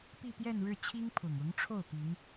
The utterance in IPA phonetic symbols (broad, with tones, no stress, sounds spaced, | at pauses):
p i˥˧ p j ɛ˥˧ n ɻ ɻ̩˥˩ t͡ɕʰ i˥ ŋ pʰ ʊ˨˩ ŋ ʊ˧˥ ŋ ʈ͡ʂʰ o˥˩ ʊ̯ p i˧˥ ŋ